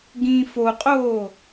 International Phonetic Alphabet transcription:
ɡ ĩ f o qʼ oː

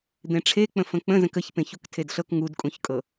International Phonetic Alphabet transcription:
d̪ ẽ ʈ͡ʂʰ e k͡p ə̃ f ə̃ k͡p ə̃ z ə̃ k ə ç p ẽ ç u k tʰ e d ɬ ɤ k ŋ u d kʼ ũ ç kʼ ɤ

